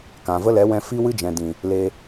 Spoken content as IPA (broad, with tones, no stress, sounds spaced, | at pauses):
k ã˨ v ə˦ l ɛ˨˦ w ɛ̃˧ f i˦ w ɨ˦ d͡ʒ ɛ̃˨ d ĩ˨ | l e˧